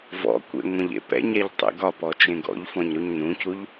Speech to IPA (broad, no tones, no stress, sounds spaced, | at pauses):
v ɔ̰ kʷ ḛ ŋʷ ẽ ʎ ḛ p ɛ̰ ɲ ɛ ʎ tˤ ḛ ɡ ɒ p ɔ t͡ʃ ẽ ɡ ɔ̰ ʎ f ɔ̃ ɲ ɾ u ɲ n ũ c u ʎ